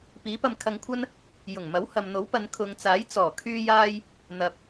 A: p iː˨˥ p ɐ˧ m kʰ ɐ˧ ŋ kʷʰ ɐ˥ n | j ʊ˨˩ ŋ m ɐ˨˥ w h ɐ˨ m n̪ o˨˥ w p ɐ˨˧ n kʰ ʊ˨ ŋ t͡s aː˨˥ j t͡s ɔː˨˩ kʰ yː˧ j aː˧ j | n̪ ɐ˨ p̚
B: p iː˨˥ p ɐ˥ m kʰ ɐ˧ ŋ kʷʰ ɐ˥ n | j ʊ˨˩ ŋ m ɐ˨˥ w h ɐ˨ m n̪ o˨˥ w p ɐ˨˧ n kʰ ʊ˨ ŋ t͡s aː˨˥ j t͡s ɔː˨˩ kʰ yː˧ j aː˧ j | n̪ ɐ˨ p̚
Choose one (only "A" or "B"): A